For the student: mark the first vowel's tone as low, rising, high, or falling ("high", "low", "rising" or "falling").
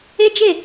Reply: high